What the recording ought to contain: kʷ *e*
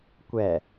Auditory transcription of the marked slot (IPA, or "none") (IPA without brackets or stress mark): ɛ